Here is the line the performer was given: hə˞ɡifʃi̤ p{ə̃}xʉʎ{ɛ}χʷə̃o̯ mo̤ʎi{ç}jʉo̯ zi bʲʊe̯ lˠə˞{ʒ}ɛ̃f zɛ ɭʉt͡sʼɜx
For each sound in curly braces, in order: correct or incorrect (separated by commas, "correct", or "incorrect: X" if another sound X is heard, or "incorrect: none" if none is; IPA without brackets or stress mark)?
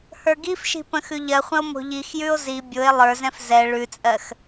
correct, incorrect: ɜ, incorrect: x, incorrect: z